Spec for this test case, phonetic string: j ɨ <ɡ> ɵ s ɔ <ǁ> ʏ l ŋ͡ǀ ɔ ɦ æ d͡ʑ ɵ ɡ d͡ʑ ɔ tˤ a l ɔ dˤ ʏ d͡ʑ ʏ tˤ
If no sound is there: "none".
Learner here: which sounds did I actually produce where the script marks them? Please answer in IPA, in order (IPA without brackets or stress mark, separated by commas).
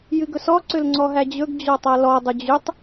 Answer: ɡ, ǀ